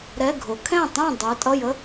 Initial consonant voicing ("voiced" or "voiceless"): voiced